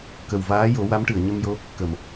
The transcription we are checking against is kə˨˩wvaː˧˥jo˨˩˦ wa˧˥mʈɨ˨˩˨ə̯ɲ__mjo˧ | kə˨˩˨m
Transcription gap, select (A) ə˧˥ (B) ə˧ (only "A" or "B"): B